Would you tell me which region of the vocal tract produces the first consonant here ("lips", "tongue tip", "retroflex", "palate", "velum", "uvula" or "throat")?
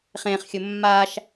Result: uvula